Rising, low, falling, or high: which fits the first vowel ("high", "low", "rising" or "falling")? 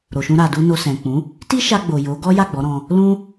low